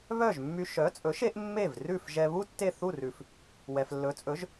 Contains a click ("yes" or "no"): no